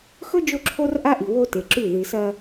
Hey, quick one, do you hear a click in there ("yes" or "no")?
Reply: yes